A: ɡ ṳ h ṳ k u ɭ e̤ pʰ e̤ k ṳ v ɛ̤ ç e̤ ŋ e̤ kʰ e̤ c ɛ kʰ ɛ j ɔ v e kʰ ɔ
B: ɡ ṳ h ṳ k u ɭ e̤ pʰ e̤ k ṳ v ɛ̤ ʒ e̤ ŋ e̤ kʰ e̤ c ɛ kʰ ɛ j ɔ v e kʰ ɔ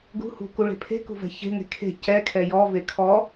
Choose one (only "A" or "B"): A